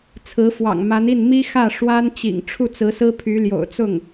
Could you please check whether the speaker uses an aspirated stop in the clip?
yes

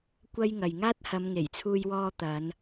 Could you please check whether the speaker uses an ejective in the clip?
no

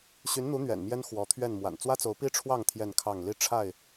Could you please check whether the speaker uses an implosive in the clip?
no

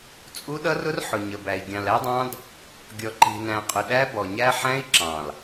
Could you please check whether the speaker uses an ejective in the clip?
yes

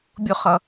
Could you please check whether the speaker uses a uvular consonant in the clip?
yes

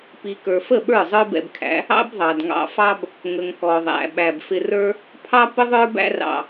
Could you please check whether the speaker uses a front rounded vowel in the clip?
no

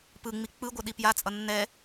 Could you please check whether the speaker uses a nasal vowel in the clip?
no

